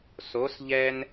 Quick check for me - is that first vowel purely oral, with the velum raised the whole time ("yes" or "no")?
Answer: yes